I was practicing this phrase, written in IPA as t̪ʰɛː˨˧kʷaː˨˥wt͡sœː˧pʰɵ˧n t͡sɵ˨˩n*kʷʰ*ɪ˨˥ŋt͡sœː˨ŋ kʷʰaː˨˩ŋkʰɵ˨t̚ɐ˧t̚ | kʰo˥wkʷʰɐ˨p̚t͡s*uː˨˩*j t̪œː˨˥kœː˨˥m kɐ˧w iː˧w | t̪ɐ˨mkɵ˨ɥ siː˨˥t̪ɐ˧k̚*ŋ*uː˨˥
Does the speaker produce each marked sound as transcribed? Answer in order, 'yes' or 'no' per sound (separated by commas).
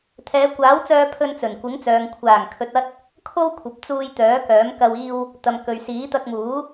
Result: no, no, no